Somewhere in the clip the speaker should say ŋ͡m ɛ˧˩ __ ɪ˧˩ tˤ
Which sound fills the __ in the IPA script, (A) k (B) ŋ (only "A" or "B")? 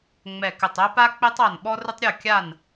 A